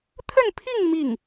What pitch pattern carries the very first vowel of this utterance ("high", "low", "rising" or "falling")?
falling